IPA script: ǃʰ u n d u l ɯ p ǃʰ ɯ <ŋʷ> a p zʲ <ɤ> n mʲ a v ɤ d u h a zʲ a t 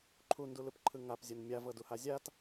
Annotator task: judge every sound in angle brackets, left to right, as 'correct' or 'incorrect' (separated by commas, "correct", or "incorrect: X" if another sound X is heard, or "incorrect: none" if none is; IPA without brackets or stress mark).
incorrect: ŋ, correct